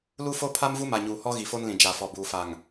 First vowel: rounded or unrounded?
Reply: rounded